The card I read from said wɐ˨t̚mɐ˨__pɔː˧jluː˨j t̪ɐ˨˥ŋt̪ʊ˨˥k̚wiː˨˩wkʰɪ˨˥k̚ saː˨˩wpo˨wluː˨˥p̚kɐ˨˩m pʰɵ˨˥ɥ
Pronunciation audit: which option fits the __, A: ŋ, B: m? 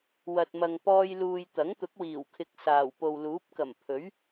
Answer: A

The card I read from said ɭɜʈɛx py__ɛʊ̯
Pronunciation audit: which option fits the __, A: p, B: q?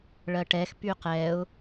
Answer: B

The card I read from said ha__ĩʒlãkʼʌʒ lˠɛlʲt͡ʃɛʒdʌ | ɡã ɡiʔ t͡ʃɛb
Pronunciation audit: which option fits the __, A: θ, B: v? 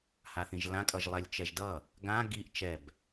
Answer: A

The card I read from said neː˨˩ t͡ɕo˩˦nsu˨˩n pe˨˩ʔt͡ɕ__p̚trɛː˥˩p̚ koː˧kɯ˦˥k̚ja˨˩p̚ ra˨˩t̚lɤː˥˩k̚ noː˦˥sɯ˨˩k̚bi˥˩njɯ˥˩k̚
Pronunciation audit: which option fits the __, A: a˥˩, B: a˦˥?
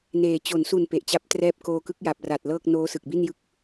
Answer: B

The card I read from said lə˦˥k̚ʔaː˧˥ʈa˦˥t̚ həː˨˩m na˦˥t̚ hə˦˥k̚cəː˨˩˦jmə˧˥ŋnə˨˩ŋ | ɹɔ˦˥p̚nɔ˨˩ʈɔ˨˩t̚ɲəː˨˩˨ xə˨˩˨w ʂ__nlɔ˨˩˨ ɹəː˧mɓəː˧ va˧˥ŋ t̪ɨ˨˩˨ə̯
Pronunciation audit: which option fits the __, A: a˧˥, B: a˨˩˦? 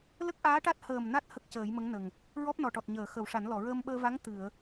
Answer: B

